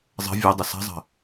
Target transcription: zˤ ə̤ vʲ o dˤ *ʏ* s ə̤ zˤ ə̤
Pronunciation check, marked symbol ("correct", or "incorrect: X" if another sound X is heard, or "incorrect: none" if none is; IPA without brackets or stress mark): incorrect: ə